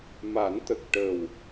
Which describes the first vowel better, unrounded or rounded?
unrounded